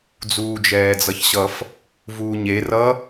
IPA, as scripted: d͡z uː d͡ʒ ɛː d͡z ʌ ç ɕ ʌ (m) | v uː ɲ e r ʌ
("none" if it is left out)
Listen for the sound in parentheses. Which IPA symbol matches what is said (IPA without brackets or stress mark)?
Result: f